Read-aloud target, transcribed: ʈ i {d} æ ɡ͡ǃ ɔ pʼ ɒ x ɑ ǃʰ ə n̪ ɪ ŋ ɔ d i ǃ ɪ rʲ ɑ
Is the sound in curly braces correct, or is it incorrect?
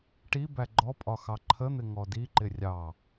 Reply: incorrect